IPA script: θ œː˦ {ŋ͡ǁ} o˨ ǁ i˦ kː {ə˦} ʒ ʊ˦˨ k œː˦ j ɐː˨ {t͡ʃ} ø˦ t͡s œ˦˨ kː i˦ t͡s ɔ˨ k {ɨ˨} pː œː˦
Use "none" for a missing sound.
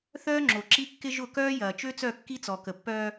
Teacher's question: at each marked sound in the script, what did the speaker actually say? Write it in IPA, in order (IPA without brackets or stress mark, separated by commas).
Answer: ŋ͡ǁ, ɪ˦, t͡ʃ, ə˨